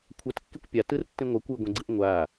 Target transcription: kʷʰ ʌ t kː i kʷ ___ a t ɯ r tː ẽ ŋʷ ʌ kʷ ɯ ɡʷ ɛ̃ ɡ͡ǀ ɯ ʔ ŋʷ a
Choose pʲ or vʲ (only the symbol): pʲ